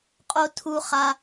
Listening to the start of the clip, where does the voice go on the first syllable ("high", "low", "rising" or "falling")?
high